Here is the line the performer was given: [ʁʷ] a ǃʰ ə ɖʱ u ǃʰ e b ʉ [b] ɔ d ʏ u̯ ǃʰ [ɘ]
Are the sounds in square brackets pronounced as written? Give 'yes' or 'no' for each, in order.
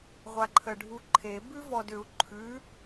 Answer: yes, no, no

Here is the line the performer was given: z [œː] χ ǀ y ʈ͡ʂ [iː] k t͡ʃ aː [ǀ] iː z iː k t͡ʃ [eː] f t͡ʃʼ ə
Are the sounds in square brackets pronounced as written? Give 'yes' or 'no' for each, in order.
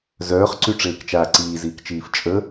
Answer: yes, no, yes, no

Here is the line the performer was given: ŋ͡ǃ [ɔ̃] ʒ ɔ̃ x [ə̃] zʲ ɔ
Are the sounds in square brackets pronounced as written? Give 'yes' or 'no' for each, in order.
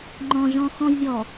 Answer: yes, no

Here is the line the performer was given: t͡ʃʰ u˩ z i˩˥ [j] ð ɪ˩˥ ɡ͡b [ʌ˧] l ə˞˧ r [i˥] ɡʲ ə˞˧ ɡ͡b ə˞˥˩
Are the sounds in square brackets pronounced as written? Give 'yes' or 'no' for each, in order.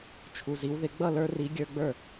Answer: no, no, no

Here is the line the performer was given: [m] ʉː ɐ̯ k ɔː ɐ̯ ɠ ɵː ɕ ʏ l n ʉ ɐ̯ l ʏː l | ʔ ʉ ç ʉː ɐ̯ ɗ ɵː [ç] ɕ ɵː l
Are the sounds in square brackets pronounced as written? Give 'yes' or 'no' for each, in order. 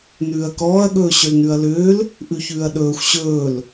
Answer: no, no

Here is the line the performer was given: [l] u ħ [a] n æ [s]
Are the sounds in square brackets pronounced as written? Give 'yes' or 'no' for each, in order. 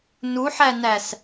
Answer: no, no, yes

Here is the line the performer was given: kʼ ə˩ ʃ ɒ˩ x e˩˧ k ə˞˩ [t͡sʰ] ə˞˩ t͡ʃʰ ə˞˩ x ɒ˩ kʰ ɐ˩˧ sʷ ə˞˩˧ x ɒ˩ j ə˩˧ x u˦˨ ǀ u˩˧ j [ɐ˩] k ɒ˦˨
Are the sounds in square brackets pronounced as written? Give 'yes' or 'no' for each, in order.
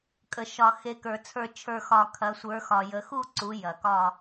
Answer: yes, yes

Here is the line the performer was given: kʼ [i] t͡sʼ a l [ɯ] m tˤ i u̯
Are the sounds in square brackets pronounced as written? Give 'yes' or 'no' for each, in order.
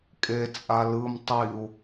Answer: no, yes

